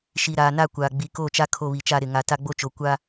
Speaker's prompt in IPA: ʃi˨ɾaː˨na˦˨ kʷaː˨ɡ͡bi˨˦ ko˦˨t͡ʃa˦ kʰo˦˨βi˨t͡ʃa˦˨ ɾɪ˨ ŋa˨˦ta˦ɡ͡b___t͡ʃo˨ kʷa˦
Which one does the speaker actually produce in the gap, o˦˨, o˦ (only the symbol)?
o˦